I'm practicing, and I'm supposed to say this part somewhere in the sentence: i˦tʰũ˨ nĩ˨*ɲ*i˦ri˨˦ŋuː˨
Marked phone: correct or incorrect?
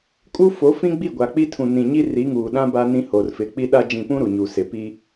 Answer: correct